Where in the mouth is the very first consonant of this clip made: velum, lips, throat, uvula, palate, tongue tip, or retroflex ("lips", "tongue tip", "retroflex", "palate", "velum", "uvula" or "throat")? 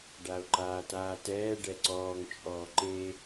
retroflex